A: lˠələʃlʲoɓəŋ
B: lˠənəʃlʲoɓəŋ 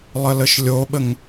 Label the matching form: A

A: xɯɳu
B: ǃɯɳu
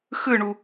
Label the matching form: A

